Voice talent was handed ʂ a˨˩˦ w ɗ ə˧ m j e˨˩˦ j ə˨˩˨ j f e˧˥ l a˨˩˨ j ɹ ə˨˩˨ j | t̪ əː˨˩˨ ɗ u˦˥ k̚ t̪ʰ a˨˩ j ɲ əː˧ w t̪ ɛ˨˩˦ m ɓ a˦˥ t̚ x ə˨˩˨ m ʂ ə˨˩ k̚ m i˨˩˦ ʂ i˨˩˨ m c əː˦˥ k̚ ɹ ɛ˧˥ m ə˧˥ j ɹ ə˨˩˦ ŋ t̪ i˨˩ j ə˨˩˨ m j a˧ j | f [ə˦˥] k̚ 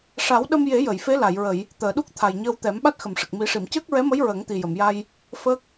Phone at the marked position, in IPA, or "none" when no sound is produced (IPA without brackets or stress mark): ə˦˥